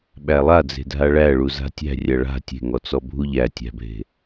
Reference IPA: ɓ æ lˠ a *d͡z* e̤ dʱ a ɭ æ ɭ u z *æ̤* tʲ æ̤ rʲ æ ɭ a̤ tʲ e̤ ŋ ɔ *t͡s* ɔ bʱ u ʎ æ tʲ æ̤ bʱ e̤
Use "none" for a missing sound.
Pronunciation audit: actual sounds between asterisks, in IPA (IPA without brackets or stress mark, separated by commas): d͡z, a̤, t͡s